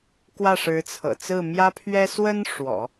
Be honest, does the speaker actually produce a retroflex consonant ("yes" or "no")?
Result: yes